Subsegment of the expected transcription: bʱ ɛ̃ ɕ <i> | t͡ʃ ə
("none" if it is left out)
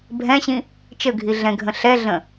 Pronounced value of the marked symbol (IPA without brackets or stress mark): ĩ